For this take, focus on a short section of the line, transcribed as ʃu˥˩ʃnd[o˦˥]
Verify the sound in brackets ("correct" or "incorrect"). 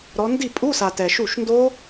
correct